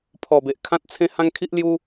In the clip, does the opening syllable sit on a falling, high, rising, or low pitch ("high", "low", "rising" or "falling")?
low